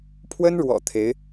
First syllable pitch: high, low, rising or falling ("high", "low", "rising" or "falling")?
high